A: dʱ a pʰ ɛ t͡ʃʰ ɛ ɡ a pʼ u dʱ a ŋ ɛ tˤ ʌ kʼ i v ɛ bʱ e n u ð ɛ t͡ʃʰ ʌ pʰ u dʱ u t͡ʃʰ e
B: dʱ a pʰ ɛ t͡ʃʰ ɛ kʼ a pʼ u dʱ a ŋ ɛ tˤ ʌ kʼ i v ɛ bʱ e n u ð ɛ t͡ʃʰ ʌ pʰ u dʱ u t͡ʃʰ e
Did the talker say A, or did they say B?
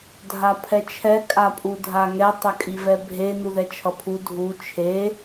B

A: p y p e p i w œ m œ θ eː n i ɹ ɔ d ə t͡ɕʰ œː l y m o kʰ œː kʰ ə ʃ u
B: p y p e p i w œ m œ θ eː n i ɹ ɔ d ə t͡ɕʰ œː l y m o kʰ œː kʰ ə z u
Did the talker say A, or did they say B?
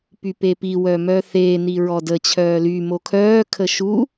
A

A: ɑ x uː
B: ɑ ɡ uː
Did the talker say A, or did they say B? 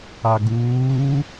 B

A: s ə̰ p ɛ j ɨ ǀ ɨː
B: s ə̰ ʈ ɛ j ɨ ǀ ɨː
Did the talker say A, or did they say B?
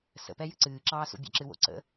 A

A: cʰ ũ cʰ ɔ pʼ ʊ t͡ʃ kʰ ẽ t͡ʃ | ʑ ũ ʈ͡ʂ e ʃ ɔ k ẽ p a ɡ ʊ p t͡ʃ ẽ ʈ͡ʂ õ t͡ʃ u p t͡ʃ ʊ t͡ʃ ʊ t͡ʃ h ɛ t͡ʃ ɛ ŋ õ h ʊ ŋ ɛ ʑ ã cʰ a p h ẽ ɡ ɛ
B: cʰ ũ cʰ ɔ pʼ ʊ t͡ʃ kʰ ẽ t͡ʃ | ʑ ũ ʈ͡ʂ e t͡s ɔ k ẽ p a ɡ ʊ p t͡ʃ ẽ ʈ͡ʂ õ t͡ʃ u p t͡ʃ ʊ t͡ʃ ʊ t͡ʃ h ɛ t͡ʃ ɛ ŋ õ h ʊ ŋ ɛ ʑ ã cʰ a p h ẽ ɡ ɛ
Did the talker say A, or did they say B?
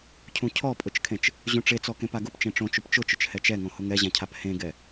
B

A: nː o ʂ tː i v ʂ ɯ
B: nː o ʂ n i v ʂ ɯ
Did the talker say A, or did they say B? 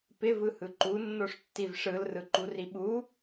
A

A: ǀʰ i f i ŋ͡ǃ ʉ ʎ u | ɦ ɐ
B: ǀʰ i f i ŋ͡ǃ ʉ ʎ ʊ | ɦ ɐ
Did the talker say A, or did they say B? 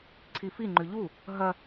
A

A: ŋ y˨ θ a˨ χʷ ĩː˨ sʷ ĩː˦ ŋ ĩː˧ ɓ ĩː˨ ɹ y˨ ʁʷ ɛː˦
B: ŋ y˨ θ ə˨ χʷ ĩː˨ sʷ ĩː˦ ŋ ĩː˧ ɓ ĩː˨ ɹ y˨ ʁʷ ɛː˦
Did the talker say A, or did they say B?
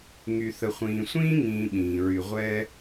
B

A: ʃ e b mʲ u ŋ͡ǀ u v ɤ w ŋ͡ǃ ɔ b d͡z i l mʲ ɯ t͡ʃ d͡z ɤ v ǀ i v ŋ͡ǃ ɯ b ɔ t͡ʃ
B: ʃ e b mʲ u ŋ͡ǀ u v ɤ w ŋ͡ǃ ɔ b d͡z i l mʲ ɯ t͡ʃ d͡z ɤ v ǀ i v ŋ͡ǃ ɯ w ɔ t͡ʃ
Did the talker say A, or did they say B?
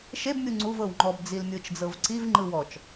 B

